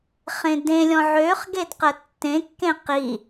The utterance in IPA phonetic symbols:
χ ẽ d ẽ lʲ ɔ̃ ʕ ø χ ɡ e d q ə tː ẽ kː ẽ q i

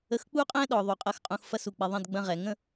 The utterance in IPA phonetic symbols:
ə˧ x k͡p u˥ qʼ ɛ̃˥ ɗ ɔ˩˧ ðˤ u˩˧ qʼ ɐ˥ x qʼ ũ˧ x f ɐ˥ s u˧˩ k͡p ɛ˧ ðˤ ɛ̃˥˧ d ɡ͡b ɐ̃˥ ʁ ɛ˩˧ ŋ ə̃˥˧

